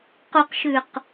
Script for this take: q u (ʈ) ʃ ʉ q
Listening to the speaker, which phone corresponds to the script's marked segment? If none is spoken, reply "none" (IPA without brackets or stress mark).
q